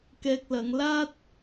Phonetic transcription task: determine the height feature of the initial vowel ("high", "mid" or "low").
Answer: mid